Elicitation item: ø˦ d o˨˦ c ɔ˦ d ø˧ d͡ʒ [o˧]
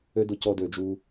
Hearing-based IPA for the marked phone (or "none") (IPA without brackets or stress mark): u˧